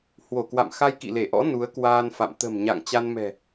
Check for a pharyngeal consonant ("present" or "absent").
absent